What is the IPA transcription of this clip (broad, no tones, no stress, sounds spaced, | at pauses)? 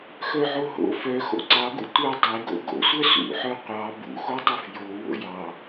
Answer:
x œ ʕ o ɦ o̰ f œ x o̰ ǀ ɑ ɡ ṵ tʷ œ dˤ e ɡ o̰ ɡ o̰ sʷ œ s ṵ ħ œ qʷ ɑ b ṵ x o tˤ u f j o w o̰ j ɑ